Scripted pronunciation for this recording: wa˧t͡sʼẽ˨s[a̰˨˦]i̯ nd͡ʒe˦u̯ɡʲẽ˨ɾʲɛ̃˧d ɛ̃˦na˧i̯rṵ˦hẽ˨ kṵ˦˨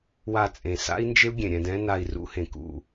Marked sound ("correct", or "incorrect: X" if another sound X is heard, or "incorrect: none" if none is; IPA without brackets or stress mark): incorrect: a̰˦